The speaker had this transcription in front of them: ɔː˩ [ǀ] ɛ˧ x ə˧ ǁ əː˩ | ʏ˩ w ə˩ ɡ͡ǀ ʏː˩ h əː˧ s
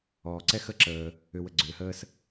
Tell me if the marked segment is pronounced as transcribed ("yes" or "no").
yes